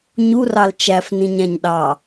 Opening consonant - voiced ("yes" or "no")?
yes